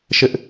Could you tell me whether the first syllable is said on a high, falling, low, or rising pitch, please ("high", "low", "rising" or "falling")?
high